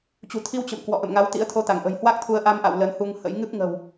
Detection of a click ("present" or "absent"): absent